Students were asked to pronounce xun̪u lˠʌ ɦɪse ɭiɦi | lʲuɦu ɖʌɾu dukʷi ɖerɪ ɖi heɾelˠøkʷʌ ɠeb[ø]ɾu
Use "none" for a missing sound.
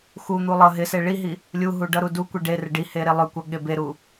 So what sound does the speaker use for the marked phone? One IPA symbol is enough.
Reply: e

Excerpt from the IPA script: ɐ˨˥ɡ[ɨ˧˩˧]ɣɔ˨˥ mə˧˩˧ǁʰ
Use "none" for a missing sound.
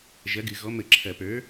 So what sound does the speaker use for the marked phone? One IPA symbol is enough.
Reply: ɨ˧˩˧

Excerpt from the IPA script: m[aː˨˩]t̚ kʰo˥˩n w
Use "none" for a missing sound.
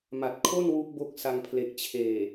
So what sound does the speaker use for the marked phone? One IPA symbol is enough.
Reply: a˨˩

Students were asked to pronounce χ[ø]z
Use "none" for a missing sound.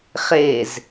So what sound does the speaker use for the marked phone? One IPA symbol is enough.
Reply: e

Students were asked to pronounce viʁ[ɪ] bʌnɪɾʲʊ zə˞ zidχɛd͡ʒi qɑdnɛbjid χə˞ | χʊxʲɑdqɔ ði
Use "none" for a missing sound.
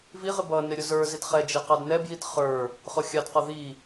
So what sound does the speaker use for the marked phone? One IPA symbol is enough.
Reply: ɪ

